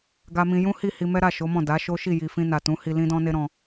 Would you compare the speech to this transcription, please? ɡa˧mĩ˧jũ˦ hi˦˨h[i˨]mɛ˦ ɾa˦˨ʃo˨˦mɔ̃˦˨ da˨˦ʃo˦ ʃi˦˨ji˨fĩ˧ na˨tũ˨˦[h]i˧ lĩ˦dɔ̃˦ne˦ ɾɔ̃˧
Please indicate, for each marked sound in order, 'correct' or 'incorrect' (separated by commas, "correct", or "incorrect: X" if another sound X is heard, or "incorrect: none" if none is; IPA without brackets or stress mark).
incorrect: i˧, correct